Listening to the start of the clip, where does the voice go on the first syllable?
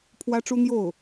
high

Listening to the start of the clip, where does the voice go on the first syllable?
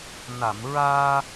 low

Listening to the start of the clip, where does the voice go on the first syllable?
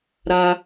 high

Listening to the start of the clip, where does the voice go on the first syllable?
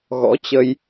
rising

